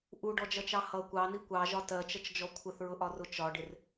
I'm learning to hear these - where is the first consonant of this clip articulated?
throat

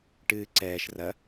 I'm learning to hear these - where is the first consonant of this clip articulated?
retroflex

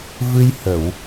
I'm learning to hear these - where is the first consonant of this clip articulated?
lips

